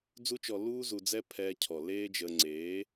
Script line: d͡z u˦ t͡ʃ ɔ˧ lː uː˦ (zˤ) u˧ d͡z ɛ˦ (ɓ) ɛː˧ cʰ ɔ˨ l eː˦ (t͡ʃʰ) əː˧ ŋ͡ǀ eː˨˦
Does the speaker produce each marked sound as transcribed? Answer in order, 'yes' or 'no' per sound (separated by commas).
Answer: no, no, no